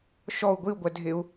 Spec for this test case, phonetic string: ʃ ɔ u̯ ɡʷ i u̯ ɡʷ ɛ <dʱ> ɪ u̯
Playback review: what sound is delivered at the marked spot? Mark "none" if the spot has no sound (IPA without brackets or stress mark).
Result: dʱ